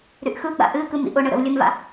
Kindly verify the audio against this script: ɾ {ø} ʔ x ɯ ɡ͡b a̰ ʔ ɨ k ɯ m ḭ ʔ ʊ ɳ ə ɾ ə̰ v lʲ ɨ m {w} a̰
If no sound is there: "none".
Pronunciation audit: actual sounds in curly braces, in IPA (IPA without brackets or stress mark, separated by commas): y, v